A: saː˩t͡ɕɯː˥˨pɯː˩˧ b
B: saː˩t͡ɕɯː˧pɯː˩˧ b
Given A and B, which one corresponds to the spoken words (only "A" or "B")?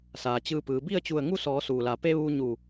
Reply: B